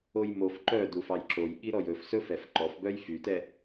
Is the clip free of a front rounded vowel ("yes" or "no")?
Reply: no